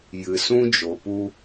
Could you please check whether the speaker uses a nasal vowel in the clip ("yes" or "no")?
yes